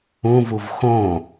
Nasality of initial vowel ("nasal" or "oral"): nasal